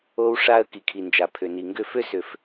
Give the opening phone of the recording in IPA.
o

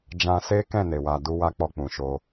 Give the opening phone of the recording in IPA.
d͡ʒ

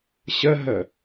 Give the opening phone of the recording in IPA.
ɕ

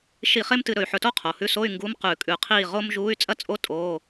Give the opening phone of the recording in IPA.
ʃ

